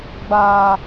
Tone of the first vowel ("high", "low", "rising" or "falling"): low